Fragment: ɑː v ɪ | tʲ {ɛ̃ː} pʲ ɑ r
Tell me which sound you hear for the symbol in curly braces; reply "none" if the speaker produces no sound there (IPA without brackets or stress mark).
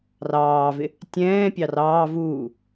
ɛ̃ː